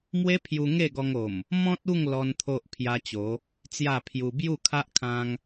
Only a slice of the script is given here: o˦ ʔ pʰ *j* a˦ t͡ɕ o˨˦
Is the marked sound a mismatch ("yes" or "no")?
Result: no